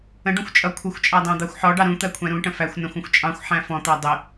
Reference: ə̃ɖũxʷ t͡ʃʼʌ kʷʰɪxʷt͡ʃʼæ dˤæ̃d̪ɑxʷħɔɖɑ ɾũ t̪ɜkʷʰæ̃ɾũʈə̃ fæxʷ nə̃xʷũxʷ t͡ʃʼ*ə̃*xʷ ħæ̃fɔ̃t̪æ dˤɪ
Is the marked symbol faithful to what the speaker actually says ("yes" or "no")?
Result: no